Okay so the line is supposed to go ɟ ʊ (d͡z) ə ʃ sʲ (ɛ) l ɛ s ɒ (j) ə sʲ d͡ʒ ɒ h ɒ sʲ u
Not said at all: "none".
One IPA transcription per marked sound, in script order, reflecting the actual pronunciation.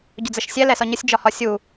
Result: d͡z, ɛ, ɲ

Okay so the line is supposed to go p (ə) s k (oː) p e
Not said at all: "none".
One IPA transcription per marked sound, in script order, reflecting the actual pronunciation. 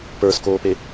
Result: ə˞, oː

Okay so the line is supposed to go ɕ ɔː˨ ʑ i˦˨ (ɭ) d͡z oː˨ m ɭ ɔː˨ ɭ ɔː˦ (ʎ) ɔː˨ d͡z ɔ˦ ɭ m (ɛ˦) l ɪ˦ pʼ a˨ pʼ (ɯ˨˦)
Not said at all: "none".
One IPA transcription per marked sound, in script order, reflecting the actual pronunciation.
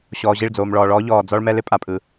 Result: ɭ, ʎ, ɛ˦, ɯ˨

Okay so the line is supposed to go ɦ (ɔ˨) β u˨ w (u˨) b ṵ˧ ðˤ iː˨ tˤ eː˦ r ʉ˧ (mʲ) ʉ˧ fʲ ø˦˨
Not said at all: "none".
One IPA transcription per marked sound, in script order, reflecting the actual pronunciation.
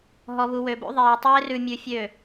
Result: ɔ˨, ø˨, mʲ

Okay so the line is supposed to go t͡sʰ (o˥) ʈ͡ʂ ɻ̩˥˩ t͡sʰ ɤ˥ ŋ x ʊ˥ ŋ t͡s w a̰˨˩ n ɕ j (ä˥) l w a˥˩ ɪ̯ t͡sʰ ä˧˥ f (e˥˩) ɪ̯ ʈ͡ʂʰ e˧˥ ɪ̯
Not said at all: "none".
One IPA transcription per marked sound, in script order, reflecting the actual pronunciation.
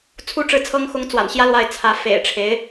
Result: u˥, ä˥, ḛ˨˩

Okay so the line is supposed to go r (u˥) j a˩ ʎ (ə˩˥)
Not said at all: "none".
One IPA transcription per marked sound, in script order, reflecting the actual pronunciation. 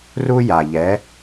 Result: u˥, ɛ˩˥

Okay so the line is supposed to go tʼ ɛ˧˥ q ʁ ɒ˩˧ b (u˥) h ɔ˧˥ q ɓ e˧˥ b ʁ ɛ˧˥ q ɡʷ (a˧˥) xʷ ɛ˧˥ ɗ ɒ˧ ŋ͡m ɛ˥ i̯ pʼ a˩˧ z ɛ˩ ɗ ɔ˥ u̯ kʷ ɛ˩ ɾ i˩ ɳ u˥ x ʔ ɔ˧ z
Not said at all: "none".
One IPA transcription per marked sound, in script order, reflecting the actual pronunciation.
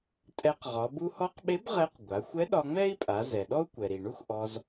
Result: u˧, a˩˧

